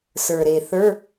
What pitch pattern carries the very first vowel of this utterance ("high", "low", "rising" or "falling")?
low